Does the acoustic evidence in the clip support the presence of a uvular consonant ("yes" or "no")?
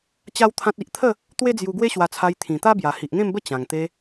no